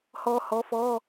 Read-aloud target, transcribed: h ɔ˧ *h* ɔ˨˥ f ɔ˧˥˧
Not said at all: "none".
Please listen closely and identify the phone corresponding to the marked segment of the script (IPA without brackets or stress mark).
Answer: h